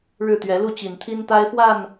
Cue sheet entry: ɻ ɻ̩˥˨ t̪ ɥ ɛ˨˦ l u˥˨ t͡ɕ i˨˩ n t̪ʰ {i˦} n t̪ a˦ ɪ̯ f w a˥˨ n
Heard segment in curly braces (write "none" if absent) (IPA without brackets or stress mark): i˦